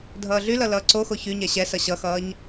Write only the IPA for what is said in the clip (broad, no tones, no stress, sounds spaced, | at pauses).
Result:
dʱ ʌː ɮ y l ʌ l ʌː ǀ o x o ç y ɲ ɛ ɕ ɛ s ʌ ɕ ʌ x ʌː ɲ